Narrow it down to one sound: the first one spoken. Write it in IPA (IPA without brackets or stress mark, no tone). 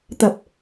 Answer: t̪